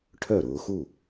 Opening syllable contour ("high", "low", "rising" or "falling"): falling